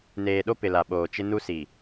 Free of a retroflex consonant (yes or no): yes